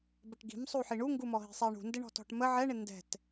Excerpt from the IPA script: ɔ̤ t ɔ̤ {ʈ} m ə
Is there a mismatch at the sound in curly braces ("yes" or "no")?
no